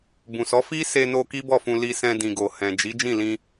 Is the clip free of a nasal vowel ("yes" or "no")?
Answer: no